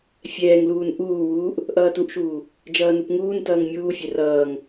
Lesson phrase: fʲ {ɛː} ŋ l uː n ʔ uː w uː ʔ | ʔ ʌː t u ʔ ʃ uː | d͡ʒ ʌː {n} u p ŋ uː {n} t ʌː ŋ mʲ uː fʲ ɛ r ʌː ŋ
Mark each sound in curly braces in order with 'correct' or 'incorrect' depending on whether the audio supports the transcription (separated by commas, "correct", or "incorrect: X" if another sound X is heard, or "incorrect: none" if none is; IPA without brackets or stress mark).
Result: correct, correct, correct